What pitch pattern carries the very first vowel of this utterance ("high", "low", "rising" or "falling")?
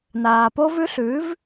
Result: low